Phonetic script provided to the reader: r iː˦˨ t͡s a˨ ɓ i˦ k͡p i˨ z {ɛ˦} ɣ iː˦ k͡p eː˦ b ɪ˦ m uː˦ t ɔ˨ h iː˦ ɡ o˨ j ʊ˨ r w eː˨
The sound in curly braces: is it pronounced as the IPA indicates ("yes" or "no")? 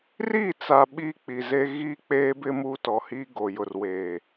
no